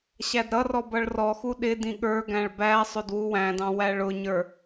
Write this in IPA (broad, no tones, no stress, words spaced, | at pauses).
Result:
ɕædɾʌrɔ bʌɭrɔxu ɗɪdĩ ɠə˞ɡæ̃ɭ bæsˤʊd wuwæ̃dɑ̃ wæɭʊɲə˞